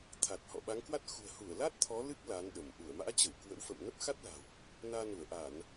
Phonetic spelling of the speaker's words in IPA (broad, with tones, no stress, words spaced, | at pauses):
t̪ʰa˨˩t̚hɔ̰˧˨ɓa˨˦ŋkwa˦˥t̚ xṳ˨˩ə̯hu˧˩ə̯la˦˥t̚ t̪ʰɔ˨˦lɨ˦˥k̚ la˨˦nɗə˧˩m ʔu˧˩ə̯ma̰ː˧˥t͡ɕə˧˩w kwə̰˧˥wfə̰˧˨m nə˦˥p̚xa˦˥t̚la̤˨˩w | naː˧nu˧˩ə̯ ʔa˧˩˨n